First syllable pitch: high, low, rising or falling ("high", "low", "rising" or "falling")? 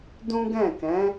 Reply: high